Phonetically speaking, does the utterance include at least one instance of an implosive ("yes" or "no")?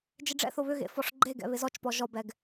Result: no